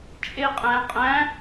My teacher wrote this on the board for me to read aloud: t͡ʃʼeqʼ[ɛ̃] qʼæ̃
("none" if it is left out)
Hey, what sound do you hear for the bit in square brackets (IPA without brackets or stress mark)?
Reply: æ̃